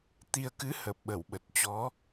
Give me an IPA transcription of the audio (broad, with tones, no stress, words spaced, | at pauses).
t̪i˧ə̯ kɨ˨˦ hə˨˩p̚ɓə˧˩wɓə˨˩t̚ t͡ɕɔ˨˦